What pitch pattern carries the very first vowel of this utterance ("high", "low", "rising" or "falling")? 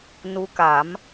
rising